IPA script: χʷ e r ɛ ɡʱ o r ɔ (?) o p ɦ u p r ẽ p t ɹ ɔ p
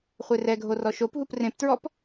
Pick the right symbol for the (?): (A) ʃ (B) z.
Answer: A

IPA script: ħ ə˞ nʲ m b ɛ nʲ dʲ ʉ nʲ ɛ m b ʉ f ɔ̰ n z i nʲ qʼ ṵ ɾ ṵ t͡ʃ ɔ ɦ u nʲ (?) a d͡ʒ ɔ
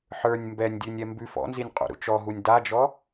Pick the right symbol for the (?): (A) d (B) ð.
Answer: A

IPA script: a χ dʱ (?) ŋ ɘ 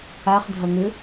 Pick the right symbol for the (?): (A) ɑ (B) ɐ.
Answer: B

